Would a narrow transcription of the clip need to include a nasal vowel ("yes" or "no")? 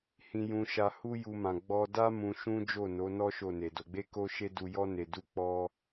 yes